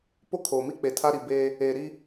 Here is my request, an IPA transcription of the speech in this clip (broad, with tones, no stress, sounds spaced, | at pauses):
p o˦ kʰ oː˨ m i˦ k͡p e˨ tʰ a˦ ɾ i˨ b eː˦ | eː˨ ɾ i˦